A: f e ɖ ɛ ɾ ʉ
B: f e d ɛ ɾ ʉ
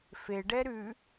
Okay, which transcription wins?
A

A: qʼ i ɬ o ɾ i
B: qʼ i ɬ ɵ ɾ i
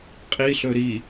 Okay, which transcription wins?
B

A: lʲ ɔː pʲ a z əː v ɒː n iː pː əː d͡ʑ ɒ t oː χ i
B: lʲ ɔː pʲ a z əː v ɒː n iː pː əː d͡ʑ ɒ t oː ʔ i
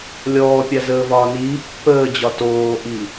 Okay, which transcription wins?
B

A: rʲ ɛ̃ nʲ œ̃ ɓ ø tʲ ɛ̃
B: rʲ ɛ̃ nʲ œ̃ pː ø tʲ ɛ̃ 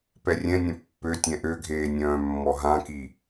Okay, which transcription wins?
B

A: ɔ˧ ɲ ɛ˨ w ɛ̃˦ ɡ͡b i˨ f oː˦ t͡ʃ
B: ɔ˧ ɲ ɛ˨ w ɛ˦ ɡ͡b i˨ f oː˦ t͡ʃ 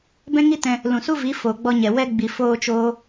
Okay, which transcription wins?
B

